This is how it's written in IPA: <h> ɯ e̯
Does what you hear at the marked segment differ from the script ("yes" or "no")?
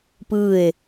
yes